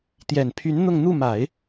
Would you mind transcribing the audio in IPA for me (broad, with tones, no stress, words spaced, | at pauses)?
t̪jɛ˨˩npʰy˧˥n n̪ʊ˥˧ŋ n̪u˥˩ma˨˩˦ɪ̯